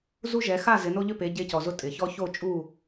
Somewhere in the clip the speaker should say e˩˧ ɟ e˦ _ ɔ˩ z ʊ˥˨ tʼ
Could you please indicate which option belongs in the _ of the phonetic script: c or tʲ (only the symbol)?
c